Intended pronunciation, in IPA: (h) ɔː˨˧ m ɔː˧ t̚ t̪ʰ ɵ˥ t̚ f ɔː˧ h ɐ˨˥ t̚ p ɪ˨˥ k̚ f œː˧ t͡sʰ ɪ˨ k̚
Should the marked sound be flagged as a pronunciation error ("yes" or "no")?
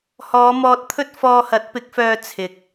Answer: no